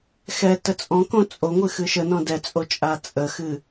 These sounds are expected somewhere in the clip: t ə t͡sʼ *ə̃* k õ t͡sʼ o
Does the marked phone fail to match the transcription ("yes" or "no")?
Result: yes